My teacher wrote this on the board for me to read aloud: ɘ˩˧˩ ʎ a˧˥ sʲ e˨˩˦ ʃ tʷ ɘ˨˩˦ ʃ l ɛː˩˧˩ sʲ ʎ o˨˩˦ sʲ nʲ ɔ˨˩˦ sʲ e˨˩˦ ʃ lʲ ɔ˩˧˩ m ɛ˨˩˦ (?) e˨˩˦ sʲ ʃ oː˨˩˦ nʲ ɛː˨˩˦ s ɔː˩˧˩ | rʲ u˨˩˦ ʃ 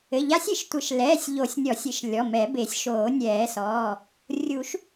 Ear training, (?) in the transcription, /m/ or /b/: b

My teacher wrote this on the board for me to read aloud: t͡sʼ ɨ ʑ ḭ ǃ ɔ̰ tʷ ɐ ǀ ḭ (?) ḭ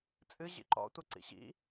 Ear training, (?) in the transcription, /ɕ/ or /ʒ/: ɕ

